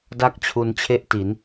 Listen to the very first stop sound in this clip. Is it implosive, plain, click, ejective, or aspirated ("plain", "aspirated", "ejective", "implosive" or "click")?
plain